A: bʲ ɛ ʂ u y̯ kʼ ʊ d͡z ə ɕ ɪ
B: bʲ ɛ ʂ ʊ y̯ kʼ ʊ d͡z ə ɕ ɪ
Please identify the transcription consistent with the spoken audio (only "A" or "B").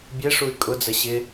A